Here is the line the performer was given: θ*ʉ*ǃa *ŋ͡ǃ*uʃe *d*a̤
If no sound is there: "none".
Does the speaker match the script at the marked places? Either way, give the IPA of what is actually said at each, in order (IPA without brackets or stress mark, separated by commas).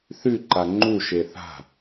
ʉ, ŋ͡ǃ, θ